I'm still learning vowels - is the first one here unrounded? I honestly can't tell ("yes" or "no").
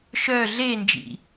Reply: no